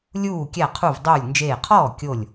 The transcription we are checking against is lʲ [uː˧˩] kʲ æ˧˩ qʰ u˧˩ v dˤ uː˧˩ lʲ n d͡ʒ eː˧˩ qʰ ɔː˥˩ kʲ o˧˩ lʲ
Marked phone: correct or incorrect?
correct